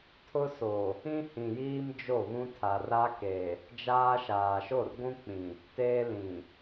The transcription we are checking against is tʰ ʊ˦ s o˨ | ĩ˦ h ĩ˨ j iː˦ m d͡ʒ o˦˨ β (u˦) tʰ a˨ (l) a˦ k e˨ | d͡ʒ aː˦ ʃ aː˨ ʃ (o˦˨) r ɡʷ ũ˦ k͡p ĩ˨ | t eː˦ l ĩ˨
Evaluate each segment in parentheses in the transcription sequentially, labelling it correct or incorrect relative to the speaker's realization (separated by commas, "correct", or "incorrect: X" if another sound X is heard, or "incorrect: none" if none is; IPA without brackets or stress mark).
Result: incorrect: ũ˦, incorrect: r, correct